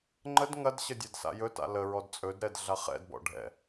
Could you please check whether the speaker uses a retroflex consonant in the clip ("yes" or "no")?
yes